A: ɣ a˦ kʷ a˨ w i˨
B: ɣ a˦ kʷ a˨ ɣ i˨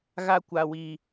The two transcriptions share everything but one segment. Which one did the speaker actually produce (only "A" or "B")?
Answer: A